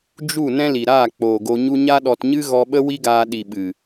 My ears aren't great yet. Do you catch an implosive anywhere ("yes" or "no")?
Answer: yes